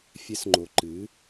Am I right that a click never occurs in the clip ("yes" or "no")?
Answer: no